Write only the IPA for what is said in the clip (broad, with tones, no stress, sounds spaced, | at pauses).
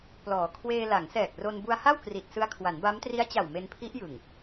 p l ɔː˩˦ kʰ w eː˧ l a˩˦ ŋ s ɛː˨˩ k̚ r o˧ n b u˧ a̯ h a˥˩ w k r i˨˩ t̚ s ɯ˧ a̯ kʰ w a˩˦ n b a˦˥ m t r i˦˥ a̯ t͡ɕ a˨˩ w m e˧ n pʰ i˦˥ ʔ j ɯ˨˩ ŋ